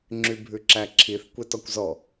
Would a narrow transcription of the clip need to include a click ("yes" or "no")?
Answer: yes